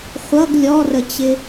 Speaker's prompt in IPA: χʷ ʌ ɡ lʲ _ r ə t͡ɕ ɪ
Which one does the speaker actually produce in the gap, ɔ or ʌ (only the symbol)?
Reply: ɔ